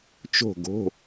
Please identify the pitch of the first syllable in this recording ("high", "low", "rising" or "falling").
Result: falling